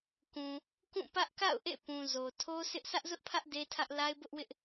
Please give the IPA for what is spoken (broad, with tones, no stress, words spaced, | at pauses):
kũ˨ | kũ˦˨pä˦ʔ ka̰˦˨ʊ̯ʔḛ˦˨pũ˨ zo˨ tʰo˦sɪ˦ʔ sʰä˦ʔzʊ˦ʔpʰä˦ʔ de˦tʰä˦ʔ la˦ɪ̯bʊ˦ʔwɪ˦ʔ